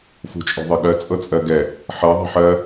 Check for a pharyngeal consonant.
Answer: present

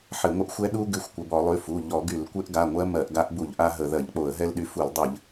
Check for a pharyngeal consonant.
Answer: present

